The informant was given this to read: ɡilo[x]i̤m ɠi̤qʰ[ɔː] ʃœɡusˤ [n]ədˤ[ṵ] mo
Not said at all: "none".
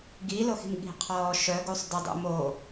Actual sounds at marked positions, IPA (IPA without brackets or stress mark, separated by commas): x, ɔː, d, ṵ